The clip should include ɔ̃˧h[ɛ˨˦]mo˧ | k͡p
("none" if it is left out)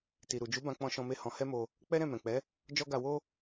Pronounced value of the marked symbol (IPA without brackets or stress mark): ɛ˦